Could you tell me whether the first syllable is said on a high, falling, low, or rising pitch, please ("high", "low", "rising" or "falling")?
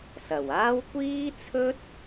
low